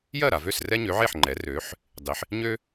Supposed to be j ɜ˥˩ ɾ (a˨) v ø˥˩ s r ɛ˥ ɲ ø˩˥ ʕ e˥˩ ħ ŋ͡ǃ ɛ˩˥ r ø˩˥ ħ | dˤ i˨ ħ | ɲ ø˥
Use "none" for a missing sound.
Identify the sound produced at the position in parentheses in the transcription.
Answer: a˨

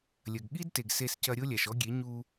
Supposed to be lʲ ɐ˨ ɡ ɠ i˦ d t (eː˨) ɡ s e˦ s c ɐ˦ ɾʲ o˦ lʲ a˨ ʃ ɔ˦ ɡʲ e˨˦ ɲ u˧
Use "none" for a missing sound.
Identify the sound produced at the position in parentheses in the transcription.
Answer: e˨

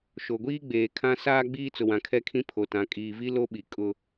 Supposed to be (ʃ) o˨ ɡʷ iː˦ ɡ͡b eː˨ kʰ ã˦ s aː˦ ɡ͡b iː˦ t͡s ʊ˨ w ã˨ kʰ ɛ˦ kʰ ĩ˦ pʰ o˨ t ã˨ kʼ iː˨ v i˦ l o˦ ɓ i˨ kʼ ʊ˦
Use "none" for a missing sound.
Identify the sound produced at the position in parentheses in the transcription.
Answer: ʃ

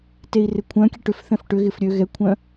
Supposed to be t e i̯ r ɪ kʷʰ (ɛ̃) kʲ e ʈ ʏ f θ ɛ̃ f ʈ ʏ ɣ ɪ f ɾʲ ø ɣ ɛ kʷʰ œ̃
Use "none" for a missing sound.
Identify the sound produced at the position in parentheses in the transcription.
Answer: œ̃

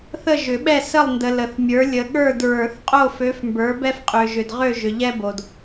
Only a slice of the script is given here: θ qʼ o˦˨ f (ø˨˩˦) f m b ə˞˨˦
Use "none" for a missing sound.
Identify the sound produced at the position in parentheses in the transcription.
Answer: ø˨˦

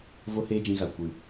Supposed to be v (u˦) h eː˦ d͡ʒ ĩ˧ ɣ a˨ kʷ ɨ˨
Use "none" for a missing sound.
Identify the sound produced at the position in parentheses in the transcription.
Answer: o˦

